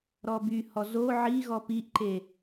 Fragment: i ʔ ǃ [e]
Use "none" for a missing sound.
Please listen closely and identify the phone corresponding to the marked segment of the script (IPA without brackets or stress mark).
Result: e